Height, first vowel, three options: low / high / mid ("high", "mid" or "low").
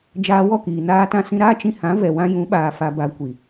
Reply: low